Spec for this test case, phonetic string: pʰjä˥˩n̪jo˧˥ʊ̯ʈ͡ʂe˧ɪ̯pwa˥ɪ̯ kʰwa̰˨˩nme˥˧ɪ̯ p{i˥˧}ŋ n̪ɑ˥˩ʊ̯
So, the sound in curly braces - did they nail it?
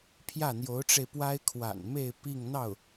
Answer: yes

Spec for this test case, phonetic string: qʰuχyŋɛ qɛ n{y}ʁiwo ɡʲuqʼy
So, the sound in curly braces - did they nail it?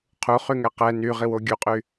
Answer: yes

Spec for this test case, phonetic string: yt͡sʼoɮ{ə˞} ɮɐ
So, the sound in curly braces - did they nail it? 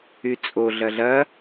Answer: no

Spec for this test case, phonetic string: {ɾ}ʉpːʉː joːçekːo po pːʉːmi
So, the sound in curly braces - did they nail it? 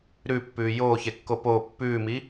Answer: yes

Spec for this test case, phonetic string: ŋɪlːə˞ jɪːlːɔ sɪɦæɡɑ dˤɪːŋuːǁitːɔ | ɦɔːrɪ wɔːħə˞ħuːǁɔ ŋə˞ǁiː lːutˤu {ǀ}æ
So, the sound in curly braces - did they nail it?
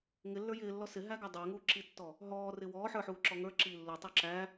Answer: no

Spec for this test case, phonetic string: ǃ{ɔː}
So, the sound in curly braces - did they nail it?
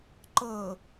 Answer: no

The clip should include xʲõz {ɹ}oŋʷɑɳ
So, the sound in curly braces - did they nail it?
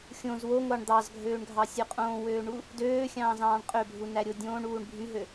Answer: no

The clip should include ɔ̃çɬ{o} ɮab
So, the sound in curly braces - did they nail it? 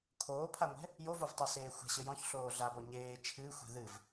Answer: no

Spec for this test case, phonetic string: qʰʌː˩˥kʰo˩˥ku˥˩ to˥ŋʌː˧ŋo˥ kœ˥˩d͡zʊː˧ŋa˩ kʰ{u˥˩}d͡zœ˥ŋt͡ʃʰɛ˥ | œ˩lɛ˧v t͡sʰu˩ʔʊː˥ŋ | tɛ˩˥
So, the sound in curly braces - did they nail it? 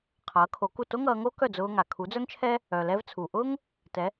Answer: no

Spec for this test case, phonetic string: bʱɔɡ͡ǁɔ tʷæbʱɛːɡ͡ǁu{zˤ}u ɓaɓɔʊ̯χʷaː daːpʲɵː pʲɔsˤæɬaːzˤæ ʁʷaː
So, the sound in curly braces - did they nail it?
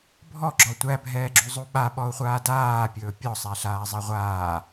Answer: yes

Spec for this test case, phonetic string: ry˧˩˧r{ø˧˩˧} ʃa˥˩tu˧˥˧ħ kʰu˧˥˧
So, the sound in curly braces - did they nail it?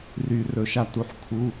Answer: no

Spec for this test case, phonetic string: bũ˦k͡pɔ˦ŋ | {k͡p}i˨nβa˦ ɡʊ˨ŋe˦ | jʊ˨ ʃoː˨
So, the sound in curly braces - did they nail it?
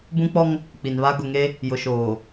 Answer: yes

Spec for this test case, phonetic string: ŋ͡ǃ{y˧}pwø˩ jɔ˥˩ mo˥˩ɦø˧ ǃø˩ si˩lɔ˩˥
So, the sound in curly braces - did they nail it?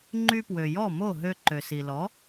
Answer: yes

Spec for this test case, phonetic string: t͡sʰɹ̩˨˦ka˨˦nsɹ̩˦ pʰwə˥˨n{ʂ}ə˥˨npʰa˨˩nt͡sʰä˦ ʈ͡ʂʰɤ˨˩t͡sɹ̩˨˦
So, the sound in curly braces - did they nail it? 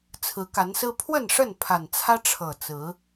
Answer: yes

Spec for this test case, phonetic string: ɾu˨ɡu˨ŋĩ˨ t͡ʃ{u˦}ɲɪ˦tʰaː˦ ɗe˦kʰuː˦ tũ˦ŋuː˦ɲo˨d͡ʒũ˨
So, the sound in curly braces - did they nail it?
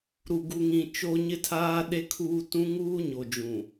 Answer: no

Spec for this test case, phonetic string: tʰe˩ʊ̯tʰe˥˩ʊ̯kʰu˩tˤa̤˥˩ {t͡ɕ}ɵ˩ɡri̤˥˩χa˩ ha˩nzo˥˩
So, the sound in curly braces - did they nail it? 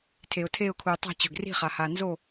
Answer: yes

